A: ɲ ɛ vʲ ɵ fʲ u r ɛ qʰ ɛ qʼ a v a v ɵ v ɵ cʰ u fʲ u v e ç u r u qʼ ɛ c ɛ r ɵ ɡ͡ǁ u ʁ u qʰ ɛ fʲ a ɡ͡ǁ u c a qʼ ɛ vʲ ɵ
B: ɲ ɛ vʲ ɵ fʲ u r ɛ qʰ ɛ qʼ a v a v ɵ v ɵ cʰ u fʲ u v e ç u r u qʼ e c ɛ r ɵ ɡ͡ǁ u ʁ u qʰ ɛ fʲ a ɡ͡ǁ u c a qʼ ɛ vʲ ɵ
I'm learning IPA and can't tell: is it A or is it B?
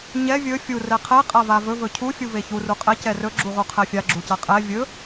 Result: A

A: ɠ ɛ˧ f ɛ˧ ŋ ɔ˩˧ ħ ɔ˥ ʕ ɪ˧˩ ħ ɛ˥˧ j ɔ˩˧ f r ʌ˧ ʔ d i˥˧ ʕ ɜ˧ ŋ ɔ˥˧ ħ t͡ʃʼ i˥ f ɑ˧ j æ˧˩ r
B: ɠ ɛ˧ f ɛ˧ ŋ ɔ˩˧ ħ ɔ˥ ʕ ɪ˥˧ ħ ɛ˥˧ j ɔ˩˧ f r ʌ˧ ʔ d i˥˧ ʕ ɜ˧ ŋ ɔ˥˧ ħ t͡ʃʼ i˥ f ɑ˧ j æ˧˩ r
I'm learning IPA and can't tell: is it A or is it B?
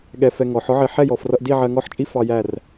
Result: A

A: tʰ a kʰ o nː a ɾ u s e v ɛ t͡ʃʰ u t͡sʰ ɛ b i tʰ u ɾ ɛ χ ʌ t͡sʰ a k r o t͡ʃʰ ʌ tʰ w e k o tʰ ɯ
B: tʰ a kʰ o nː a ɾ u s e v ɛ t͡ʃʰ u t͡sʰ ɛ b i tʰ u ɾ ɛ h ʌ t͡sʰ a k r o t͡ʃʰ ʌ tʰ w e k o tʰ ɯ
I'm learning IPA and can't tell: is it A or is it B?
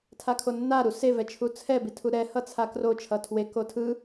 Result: B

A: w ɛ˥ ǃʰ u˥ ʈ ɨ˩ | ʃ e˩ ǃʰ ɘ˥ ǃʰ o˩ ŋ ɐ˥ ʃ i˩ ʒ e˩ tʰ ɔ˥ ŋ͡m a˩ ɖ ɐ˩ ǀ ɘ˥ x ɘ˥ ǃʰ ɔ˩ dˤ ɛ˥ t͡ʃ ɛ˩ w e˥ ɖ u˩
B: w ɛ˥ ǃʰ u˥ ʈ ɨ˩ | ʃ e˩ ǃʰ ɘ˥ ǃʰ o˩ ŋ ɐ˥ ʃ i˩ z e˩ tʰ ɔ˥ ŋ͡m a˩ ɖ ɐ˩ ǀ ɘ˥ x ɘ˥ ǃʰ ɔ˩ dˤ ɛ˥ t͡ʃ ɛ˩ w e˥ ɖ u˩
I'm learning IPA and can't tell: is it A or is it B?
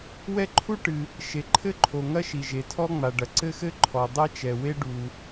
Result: A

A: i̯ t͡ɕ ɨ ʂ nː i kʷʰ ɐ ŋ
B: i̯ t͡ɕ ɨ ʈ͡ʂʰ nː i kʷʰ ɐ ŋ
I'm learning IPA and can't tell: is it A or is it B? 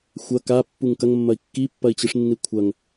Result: A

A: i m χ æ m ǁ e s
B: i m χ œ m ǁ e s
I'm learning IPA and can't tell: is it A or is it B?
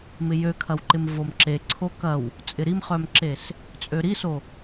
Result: B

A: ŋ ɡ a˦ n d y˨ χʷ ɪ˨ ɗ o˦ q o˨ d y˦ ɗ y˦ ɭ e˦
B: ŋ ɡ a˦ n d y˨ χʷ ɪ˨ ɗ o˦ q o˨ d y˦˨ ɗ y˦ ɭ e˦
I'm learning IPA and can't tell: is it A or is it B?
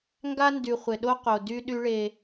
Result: A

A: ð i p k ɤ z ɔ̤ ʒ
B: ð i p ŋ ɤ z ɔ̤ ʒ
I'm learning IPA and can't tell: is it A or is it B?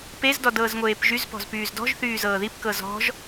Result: A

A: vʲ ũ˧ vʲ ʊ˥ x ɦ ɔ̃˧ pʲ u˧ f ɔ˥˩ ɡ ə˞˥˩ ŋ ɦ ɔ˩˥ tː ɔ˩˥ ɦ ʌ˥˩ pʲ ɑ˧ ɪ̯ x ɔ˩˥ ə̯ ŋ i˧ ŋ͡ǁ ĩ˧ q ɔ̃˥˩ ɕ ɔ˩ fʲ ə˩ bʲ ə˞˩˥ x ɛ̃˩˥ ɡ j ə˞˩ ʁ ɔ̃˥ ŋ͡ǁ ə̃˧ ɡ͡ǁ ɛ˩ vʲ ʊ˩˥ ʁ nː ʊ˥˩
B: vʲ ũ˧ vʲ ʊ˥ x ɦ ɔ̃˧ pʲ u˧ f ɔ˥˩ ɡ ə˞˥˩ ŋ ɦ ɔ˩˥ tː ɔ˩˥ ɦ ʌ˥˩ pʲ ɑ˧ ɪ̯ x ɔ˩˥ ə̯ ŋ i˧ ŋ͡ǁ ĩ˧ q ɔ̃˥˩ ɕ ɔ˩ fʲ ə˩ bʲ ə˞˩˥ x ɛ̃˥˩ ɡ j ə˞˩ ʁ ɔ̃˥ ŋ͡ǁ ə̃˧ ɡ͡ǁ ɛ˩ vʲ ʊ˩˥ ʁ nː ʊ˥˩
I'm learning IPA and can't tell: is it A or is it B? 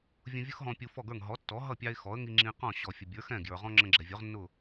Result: B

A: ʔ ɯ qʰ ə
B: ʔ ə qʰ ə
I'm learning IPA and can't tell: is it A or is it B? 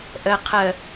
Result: B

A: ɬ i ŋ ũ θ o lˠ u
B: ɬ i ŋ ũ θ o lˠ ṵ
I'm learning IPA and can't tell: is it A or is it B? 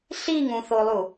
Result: A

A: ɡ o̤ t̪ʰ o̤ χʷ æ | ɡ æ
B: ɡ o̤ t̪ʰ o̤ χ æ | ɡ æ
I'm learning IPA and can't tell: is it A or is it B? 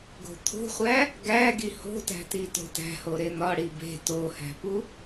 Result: A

